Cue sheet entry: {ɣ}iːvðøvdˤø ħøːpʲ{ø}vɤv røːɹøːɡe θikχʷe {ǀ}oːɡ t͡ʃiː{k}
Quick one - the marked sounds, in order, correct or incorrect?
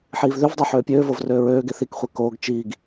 incorrect: ħ, incorrect: øː, incorrect: k, incorrect: ɡ

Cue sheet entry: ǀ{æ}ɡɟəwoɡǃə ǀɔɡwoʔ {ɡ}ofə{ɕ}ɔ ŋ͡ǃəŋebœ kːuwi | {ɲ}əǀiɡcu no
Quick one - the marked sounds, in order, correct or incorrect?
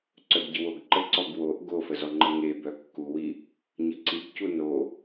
incorrect: œ, correct, incorrect: z, correct

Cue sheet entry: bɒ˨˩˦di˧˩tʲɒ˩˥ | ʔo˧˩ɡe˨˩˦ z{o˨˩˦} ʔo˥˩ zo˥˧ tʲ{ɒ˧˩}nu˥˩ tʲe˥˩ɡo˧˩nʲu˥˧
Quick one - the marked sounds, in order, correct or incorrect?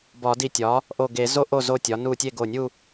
incorrect: o˥˧, incorrect: ɒ˩˥

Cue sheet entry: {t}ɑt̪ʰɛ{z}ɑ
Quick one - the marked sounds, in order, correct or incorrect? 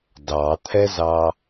incorrect: d, correct

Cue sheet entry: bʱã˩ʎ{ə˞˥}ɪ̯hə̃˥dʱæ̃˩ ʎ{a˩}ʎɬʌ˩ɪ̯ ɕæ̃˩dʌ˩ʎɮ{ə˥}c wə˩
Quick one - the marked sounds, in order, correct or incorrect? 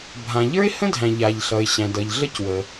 correct, correct, correct

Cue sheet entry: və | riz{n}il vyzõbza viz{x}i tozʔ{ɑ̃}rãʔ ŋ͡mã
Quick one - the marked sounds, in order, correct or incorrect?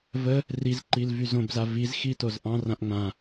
incorrect: ǃ, correct, correct

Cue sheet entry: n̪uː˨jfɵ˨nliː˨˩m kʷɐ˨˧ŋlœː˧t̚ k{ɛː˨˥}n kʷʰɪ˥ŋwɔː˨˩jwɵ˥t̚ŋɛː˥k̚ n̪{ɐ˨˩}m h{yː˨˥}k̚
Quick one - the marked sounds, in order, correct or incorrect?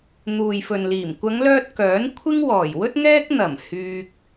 incorrect: œː˨˥, correct, incorrect: yː˧

